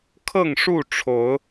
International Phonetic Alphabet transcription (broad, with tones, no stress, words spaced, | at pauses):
kʰɤ˥˨ŋʂu˥˨ ʈ͡ʂʰo˨˦ʊ̯